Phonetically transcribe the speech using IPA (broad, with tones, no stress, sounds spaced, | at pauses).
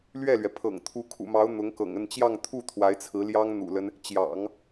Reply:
l ɥ ɛ˥˩ l ɥ ɛ˩ pʰ ɤ̰˨˩ ŋ t̪ʰ u˧˥ kʰ ṵ˨˩ m ɑ˧˥ ʊ̯ n̪ ʊ˧˥ ŋ k ɤ̰˨˩ ŋ ə˥˧ n t͡ɕ j ɑ˥˧ ŋ t̪ʰ u˥˩ t̪ʰ w a˧˥ ɪ̯ t͡sʰ ɹ̩˧˥ l j ɑ˥ ŋ n̪ ṵ˨˩ l ə˦ n | t͡ɕ j ɑ̰˨˩˦ ŋ